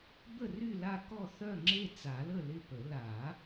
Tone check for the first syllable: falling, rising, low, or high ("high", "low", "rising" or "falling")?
falling